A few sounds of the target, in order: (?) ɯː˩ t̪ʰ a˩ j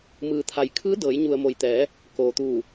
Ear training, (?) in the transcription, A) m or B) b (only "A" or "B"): A